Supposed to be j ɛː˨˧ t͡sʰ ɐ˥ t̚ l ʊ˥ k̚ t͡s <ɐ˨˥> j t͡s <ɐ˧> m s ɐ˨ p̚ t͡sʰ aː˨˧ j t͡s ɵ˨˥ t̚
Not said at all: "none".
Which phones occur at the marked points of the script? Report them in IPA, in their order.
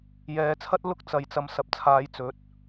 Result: ɐ˨, ɐ˨˧

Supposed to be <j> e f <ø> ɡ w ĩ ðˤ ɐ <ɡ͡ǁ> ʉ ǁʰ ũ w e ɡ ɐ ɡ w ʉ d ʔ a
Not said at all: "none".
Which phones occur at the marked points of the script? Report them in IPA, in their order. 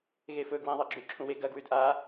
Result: ɣ, ɵ, ɡ͡ǁ

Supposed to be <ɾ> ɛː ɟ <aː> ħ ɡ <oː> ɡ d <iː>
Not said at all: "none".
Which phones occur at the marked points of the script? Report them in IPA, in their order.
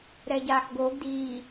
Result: ɾ, aː, oː, iː

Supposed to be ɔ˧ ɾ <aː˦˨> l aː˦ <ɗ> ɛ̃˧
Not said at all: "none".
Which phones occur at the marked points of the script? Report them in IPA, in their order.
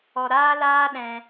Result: aː˦, ɗ

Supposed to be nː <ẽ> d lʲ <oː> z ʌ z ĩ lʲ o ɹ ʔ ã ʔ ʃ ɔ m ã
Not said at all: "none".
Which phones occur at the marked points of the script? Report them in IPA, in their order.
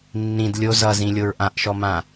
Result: ĩ, o

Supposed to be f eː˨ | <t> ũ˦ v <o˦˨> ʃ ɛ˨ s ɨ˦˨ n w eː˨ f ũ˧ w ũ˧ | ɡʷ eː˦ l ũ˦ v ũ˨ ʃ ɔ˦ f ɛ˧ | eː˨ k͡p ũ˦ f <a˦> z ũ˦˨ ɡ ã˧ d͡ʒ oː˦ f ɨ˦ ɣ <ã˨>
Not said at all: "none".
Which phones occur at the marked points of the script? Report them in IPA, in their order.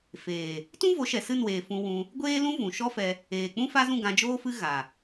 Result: t, o˨˦, a˦, a˨

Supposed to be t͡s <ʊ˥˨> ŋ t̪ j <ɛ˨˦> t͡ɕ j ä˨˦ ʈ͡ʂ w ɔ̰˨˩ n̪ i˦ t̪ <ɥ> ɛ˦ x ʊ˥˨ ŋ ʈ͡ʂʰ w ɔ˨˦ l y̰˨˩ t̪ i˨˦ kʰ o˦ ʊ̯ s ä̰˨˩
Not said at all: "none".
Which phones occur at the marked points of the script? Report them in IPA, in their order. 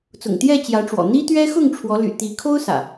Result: ʊ̰˨˩, ɛ˥˨, ɥ

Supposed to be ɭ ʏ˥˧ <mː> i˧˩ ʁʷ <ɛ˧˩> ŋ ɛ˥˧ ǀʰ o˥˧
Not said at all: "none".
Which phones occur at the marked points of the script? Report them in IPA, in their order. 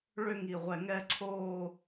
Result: ŋ, ɛ˧˩

